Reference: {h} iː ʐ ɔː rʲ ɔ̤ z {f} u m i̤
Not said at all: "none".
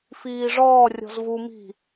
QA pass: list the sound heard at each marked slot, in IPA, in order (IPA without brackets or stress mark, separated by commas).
f, v